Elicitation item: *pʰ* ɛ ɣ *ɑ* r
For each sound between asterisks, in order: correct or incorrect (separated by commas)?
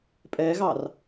incorrect, correct